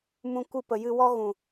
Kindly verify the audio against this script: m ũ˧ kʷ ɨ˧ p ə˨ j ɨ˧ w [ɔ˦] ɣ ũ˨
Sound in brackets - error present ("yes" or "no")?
no